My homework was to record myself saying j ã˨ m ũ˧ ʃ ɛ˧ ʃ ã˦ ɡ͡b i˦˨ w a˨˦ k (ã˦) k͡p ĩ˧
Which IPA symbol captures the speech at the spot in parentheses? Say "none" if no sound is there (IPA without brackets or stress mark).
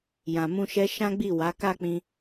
a˦